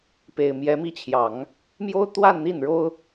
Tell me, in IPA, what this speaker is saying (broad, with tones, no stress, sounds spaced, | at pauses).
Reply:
p e˨˩ ɪ̯ m j ɛ˧˥ m i˥˩ t͡ɕʰ j ɑ˨˩˦ ŋ | m j o˥ ʊ̯ t̪ w a˥˧ n n̪ i˥˩ n ɻ o˥ ʊ̯